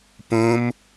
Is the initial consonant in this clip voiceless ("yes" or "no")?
yes